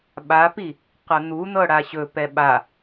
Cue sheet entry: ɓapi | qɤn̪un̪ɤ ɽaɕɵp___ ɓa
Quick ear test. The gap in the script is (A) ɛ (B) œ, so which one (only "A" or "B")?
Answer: A